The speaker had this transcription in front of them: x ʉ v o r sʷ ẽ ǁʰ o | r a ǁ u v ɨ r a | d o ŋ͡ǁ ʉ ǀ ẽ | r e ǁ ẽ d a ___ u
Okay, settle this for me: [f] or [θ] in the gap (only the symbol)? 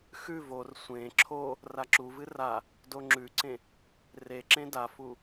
f